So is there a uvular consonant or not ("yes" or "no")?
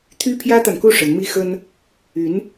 no